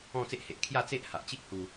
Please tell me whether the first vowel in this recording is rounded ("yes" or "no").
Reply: yes